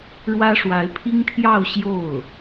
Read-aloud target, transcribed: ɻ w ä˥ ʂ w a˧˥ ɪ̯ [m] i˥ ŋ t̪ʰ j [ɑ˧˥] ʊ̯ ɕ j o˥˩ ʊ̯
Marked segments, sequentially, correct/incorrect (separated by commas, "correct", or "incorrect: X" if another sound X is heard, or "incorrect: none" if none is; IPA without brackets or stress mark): incorrect: pʰ, incorrect: ɑ˥˧